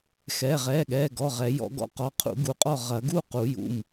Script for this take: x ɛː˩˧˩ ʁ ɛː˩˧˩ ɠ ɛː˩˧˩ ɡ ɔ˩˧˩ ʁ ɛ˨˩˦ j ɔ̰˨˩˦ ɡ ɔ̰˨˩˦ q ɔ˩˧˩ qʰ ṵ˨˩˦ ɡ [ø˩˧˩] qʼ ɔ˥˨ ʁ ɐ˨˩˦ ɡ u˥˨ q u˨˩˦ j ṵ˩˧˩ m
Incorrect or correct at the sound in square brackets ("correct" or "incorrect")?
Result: incorrect